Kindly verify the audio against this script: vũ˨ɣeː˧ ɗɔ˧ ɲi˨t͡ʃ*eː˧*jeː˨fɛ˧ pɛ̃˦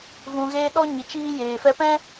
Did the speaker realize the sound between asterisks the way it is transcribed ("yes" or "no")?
no